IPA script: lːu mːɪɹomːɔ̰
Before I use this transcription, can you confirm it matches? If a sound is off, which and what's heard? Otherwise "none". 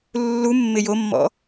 ɹ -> j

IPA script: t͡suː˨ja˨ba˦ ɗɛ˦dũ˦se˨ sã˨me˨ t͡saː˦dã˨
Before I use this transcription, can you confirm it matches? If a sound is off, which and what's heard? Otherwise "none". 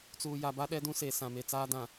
none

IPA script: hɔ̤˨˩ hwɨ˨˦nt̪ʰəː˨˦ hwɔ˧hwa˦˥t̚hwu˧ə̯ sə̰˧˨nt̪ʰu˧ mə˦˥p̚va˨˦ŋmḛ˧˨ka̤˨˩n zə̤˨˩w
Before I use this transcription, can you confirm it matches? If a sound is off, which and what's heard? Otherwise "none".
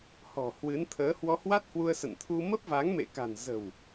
none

